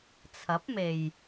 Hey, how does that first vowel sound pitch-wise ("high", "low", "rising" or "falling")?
rising